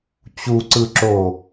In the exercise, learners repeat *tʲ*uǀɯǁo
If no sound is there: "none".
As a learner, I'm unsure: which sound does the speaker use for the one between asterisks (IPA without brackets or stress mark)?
t͡ɕ